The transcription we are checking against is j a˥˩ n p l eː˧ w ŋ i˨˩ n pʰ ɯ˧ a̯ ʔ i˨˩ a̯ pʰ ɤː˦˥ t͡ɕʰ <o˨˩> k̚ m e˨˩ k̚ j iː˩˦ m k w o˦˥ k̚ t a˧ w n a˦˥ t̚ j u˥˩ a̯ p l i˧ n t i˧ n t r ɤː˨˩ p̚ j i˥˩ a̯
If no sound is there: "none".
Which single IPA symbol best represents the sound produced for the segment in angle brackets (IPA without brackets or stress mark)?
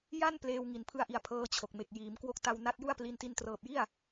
o˨˩